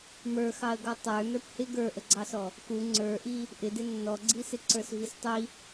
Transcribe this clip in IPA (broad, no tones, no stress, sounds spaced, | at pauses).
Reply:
m ə˞ x ɑ ə̯ ɡ ɔ tˤ ə˞ n ə˞ p h ɪ ɡ ə˞ ʔ ə ɡ͡ǀ ɑ s ɔ | k u ŋ͡ǀ ə˞ ʔ i | ʔ ɪ d ɪ nː ɔ ɡ͡ǀ i s ɪ ǀ ə˞ s v i s tˤ i